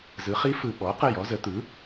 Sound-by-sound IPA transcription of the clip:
z ɯ˩˥ χ i˧˥ f ɯ˨ ɓ ɔ˩˥ q ə˦˨ j ɔ˧˥ z ə˩˥ t̪ ɯ˩˥

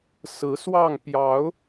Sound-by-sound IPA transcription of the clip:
s ɹ̩˨˦ s w ɑ˥˨ ŋ p j ɑ˨˦ ʊ̯

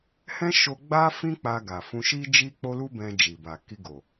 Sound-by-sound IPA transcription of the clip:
h ɛ̃˦ ʃ o˧ ɡ͡b a˦ f ĩ˦ k͡p a˧ ɡ a˨ f ũ˧ ʃ i˦ d͡ʒ i˦ k͡p o˦ l u˦ b ɛ̃˧ d͡ʒ i˨ b a˨ k i˧ ɡ o˨

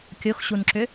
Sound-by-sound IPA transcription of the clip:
kʲ o x ɕ u n ǁ ʏ

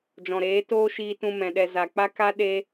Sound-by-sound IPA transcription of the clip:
d͡ʒ ɔ̃˨ ɾ eː˨˦ t oː˦ ʃ iː˧ t ũ˧ m ɛ̃˨ ɗ ɛ˧ z a˨ k͡p a˦ k a˦ ɗ e˧

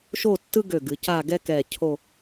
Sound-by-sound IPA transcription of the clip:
ʃ o˥˧ tː ɯ˥ ɡ ø˧˩ ɡ ɨ˩˧ c a˥˧ ɡ ɛ˥ k ɛ˧˩ cʰ o˥˧

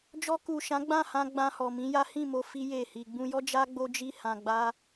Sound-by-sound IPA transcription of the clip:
d͡ʒ ɔ˧ k u˨ ʃ ã˨˦ ɡ͡b ã˦˨ h ã˧ ɡ͡b ã˧ h ɔ˨ m ĩ˨˦ j a˦ h ĩ˦˨ m o˧ f i˦ j e˦˨ h i˧ ɡ͡b ũ˧ j ɔ˦ d͡ʒ a˦ ɡ͡b o˦ d͡ʒ i˦ h ã˧ ɡ͡b a˦

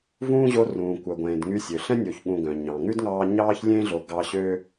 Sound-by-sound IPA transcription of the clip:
v ũː˥ ʑ o˦ r ũː˨ kʷ œ˨ ɡʷ ẽː˨ d ŋ y˦ sʲ ø˩ ɬ ɛ̃˥ nʲ o˨ ç ɠ ũ˨ ɡ œ̃˩ ɲ ɑ̃˩ ŋ ʉ˥ d ŋ ɑː˦ ɲ ɑː˥ ç lʲ ẽ˥ ɮ o˨ ɡ ɑ˦ ɕ ø˥

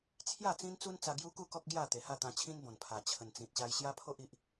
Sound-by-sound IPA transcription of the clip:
t͡sʰ j a˥˧ t͡s ĩ˦ n t͡s u˦ n t͡s a˧ ɡ j u˦ k u˥˧ k ɔ˦ k̚ ɡ j a˥˧ t̪ e˨˩ h a˥˧ t̪ ã˧ t͡ɕʰ ĩ˦ n b ɔ̃˨˩ n pʰ a˨˩ t͡ɕʰ ə˨˩ n t͡s ĩ˨ t̚ ɕ a˧ j ɕ j a˦ pʰ o˦ ʔ i˨ ʔ

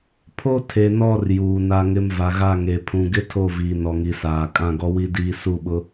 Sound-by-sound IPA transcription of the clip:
pʰ o˦ tʰ e˨ n ɔ˦˨ r j uː˨ n a˦ ŋ ɪ˦ m v a˨ ɣ a˦˨ ŋ e˨ pʰ ũ˨ ɡ ɪ˦ tʰ o˦˨ v iː˨ n ɔ˨ ŋ i˨ s aː˨ kʼ ã˦˨ ɡ ɔ˦ w i˦ d iː˦ s u˦˨ ɓ ʊ˦

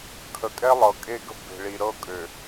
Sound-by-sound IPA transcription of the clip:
kʰ ə˨ kʼ ɛ˦ lˠ ɤ˨ kʼ e˦ ɡ ə̤˦ b e̤˨ ɭ i˨ ɾ ɤ˦˨ kʼ ø˨

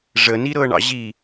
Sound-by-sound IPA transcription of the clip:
ʐ ə n i ɾ ɤ ɳ ɑ̰ ʑ i

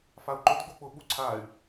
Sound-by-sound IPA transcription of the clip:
f a u̯ ǃ ʊ d ɡ͡b o k͡p ʊ ɓ u ǀʰ a y̯

